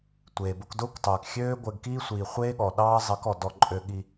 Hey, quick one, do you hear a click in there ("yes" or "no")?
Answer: yes